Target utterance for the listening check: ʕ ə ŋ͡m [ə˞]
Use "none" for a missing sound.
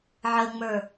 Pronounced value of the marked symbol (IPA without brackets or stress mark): ə˞